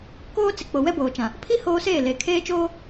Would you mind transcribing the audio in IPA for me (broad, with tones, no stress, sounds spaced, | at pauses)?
k oː˦ t͡s ɪ˨ k͡p o˨ w ɛ˦ b oː˨ t͡ʃ ã˨ | pʰ i˦ h oː˦ s eː˦˨ l e˨ kʰ eː˦ t͡ʃ oː˦